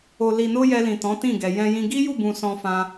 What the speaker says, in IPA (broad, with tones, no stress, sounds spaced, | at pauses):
o˨ l i˨ n o˧ j ɛ˧ l ĩ˨ t ɔ̃˨˦ t ĩ˦˨ ɡ ɛ˨ j ɛ̃˧ j ĩ˧ ɡ i˦ j u˦˨ b ũ˨ s ɔ̃˧ f ã˧